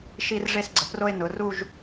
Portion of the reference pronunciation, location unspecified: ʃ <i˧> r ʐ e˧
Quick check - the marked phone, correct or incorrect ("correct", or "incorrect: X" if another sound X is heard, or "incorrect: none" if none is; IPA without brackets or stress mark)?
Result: correct